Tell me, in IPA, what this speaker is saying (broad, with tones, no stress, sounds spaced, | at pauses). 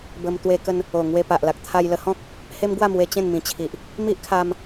b ə˧ m t̪ w e˧ k ə˧ n | o˨˩ ŋ w e˧ p a˨ ʔ l a˨ k̚ t̪ʰ a˧ j l ə˧ h ɔ̃˦ k̚ | h e˦ m ɡ w a˥˧ m w e˧ t͡ɕ ẽ˥˧ n m ĩ˨˩ t͡ɕʰ i˨ ʔ | m i˦ ʔ kʰ a˧ m